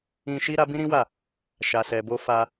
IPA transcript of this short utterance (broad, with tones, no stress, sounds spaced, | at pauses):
ĩ˧ ʃ i˦ ɾ a˦ b ĩ˦ ɾ ĩ˦ w a˦˨ | ʃ a˨ s ɛ˨ b o˧ f a˧